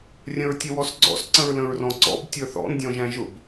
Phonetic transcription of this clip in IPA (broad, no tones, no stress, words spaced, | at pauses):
rʲə̃ɹtʲəwɔsɡ͡ǀɔ̰s ǀə̃ɹlə̃ɹrɔ̃ǀɔ̰b tʲə˞θɔ̰n dʲɔ̃ʒæ̃ʒʊb